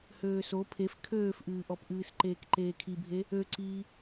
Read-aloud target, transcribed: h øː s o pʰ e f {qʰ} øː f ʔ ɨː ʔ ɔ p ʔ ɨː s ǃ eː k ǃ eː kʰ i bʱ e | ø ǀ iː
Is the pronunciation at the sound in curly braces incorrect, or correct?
incorrect